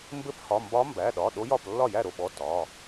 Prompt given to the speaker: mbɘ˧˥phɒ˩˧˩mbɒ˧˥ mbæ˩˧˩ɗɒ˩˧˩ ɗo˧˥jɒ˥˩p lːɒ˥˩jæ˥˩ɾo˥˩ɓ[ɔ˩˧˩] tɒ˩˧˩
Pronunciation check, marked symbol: correct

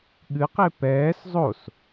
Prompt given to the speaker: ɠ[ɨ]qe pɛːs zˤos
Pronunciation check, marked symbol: correct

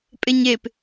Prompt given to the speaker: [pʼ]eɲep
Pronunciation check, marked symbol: correct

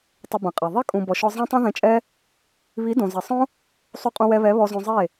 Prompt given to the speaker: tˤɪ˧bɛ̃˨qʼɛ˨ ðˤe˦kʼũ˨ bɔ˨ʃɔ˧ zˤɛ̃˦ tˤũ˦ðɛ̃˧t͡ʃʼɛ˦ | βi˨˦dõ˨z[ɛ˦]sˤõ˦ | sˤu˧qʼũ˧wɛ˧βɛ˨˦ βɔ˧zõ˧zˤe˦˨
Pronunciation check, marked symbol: incorrect: ɛ˨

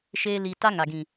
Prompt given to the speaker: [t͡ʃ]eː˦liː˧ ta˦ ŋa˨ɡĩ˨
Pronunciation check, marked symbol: incorrect: ʃ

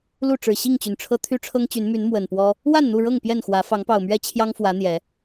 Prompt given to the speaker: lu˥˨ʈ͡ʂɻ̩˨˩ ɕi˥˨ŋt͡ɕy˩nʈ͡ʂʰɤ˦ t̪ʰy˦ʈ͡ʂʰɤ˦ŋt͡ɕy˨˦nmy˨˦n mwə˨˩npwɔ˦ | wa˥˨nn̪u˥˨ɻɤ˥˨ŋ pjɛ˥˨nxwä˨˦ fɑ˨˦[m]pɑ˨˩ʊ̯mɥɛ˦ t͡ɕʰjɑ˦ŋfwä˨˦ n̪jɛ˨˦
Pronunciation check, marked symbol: incorrect: ŋ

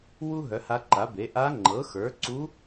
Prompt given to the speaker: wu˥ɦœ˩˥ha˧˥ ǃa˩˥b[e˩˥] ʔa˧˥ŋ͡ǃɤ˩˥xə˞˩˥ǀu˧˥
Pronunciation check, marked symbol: correct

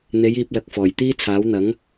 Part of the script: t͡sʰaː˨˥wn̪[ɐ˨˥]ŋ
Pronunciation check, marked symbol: correct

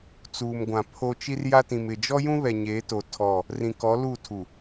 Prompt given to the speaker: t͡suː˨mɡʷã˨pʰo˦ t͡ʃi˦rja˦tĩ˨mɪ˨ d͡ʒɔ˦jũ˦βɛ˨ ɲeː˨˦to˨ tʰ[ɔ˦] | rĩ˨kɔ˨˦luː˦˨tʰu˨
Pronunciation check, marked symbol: incorrect: ɔ˦˨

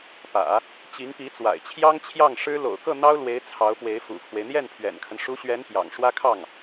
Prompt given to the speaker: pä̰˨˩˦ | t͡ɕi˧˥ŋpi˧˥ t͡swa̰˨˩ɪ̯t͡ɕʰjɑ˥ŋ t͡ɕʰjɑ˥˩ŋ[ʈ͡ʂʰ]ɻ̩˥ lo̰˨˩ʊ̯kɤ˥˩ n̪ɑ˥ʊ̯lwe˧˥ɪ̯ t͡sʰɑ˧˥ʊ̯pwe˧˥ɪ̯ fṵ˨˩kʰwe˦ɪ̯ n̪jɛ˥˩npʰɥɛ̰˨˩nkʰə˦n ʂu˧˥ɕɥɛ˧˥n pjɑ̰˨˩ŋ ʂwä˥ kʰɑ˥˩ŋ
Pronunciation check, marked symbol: incorrect: ʂ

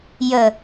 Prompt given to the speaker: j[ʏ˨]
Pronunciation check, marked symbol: incorrect: ə˨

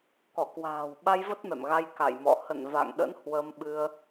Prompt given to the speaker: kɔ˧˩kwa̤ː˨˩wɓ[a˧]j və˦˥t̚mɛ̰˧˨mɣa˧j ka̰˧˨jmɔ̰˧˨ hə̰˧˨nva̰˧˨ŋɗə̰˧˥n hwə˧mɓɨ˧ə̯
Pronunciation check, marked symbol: correct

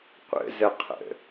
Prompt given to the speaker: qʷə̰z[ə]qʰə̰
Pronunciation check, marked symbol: correct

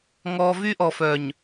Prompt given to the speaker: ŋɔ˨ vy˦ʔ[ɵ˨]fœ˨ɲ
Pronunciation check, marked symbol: incorrect: ɔ˨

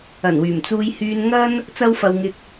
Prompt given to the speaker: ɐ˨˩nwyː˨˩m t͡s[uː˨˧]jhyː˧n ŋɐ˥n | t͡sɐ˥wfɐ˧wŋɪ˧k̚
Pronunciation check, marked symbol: incorrect: uː˧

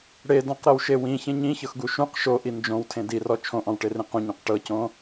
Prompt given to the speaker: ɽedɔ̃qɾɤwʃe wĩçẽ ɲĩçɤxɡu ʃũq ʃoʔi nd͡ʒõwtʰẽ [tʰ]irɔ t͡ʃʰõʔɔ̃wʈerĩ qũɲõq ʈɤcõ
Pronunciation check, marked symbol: incorrect: d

